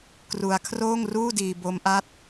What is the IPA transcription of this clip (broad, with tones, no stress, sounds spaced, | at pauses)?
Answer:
k r u˧ a̯ kʰ r oː˥˩ ŋ r uː˥˩ d iː˧ b o˦˥ m ʔ a˦˥ t̚